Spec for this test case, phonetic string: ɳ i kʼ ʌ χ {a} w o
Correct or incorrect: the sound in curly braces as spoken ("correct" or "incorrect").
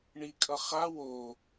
correct